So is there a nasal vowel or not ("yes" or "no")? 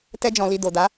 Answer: yes